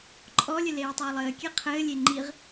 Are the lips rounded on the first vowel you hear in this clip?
yes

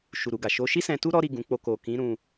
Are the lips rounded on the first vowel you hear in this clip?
yes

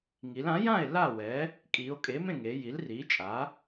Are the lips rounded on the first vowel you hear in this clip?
no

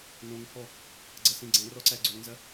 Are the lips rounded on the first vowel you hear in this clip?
yes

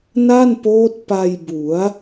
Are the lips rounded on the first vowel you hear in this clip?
no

